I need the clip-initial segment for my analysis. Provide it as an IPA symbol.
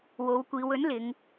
w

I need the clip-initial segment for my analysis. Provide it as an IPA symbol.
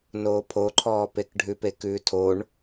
n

